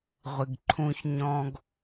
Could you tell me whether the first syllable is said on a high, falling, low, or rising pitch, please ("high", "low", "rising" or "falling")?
low